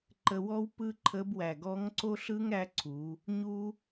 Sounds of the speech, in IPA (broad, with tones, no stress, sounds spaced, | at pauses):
ǃ ə˧ w ɔ˥ w p ɯ˥ ǃʰ ə˧˥ b w æ˩ ɡ ɔ˧˥ ŋ ǀ o˥ ɬ ɯ˥ ŋ ɾ æ˧˥ ǀʰ u˩˧ | ɲ u˥